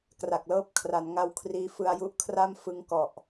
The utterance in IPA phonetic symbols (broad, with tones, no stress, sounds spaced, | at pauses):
k r a˨˩ k̚ l ɤː˦˥ p̚ kʰ r a˩˦ n ŋ a˦˥ w kʰ r iː˦˥ f ɯ˧ a̯ j u˦˥ ʔ kʰ r a˥˩ m f ɯ˦˥ ŋ k ɔ˨˩ ʔ